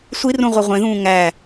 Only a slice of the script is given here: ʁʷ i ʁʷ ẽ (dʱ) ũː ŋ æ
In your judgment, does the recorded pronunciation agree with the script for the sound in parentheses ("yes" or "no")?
no